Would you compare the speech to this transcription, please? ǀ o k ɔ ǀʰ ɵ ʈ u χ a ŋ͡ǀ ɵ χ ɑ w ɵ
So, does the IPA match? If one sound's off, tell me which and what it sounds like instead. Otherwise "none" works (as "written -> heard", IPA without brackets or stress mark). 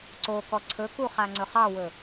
ʈ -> k